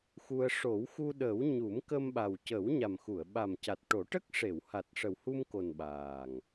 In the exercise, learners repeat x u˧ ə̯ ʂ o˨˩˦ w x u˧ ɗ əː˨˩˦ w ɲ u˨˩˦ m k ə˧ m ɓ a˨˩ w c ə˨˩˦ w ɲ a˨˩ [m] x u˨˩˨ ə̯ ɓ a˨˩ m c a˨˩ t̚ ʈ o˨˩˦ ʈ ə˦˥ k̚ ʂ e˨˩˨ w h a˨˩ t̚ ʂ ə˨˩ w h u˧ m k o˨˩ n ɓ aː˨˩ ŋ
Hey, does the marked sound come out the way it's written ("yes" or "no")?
yes